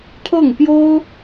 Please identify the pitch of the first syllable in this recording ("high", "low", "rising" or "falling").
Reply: falling